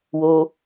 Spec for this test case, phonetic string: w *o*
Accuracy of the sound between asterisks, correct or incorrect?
correct